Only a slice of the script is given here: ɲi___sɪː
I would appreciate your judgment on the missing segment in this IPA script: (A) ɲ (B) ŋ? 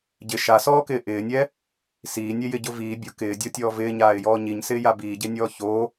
A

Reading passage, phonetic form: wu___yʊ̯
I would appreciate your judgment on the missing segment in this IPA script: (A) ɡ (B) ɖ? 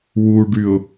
B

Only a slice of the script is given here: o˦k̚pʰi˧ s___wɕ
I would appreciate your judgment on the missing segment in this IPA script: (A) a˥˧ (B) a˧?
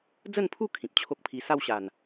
A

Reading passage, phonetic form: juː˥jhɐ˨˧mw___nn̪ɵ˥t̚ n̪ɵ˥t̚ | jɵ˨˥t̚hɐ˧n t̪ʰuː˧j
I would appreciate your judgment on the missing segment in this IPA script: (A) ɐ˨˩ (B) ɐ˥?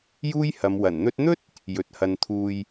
A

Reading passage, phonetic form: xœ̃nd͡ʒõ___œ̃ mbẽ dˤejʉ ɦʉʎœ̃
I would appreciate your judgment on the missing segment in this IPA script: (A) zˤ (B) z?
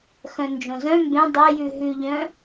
B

